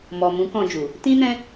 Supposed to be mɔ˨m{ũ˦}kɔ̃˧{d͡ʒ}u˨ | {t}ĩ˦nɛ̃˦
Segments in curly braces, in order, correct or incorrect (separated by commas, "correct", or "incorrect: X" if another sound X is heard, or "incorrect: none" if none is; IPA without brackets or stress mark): incorrect: ũ˨˦, correct, correct